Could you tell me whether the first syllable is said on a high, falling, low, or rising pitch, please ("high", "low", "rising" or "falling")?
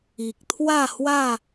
low